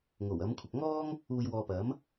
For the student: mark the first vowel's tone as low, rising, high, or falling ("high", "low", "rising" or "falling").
low